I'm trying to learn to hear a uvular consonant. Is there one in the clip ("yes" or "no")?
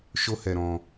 no